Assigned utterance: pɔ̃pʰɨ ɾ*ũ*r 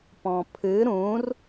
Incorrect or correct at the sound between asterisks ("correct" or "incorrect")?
correct